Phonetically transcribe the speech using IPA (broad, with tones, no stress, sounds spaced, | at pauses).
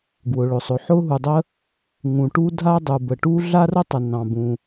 ɡ w ʊ˩ ɭ ʊ˩ sˤ ʊ˩ ħ ʊ˥ ɦ u˩ dˤ ə˥ | ŋ ũ˩ ʈ u˥ dʱ a˥ dˤ u˩ b ə˩ ʈ u˥ ɮ a˥ r ə˥ tˤ ə˩ n ɑ̃˩ b ũ˩